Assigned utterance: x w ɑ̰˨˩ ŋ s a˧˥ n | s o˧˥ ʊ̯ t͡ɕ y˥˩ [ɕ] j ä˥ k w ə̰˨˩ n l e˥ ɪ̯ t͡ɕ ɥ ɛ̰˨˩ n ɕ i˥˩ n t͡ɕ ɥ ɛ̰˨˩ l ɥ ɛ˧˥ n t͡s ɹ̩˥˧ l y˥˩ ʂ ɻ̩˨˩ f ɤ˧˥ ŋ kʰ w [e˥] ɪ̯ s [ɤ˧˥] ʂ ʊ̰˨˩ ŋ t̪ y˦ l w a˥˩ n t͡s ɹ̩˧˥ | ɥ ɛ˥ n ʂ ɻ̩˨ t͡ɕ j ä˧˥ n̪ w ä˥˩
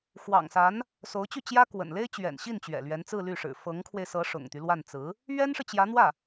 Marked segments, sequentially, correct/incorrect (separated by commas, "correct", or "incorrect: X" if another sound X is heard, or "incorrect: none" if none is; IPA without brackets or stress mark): incorrect: t͡ɕ, incorrect: e˧, correct